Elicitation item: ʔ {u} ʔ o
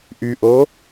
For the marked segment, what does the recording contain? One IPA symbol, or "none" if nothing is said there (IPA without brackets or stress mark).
y